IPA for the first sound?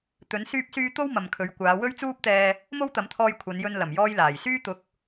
t̪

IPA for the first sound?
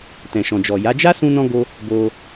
t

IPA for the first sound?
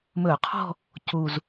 m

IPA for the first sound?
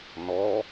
n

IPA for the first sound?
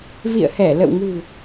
v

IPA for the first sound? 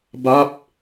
b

